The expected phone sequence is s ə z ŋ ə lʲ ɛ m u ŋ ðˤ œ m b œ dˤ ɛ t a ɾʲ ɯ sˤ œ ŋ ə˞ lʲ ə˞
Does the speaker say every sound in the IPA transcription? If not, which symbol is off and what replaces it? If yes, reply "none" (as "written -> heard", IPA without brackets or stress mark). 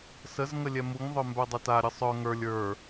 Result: none